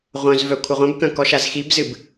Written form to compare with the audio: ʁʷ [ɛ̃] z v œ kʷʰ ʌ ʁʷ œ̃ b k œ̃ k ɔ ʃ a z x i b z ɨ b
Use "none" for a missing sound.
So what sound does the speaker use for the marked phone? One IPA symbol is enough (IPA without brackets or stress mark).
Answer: œ̃